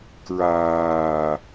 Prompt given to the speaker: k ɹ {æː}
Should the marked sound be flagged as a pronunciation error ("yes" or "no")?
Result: yes